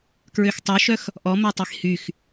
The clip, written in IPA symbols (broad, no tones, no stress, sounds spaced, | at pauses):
k ɹ ø x tˤ œ ʃ œ x | ʔ ɔ m ɛ tˤ i x h y x